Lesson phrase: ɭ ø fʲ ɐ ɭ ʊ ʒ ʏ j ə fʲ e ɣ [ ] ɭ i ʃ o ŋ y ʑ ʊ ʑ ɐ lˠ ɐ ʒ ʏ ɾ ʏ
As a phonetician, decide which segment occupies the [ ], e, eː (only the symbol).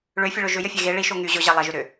e